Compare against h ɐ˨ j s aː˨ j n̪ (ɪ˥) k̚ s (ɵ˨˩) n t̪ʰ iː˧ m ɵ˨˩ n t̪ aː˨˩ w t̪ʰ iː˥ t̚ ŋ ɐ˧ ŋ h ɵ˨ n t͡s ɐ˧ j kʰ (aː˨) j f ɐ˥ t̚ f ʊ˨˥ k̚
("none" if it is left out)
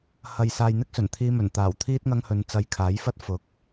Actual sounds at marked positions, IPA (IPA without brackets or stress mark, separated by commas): ɪ˥, ɵ˨˩, aː˨˥